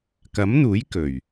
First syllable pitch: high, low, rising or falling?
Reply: rising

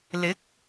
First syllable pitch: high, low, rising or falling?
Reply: rising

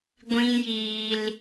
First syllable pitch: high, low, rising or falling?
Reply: high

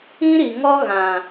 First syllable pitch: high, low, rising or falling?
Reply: high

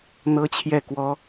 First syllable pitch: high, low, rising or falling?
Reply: high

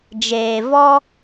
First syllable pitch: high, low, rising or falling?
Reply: low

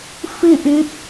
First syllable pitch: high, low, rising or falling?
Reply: falling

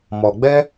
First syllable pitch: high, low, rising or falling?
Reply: low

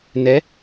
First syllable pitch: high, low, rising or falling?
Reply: rising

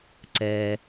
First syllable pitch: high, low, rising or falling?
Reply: low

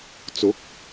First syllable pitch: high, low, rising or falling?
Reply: rising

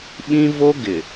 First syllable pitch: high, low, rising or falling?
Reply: high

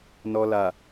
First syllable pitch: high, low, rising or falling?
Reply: low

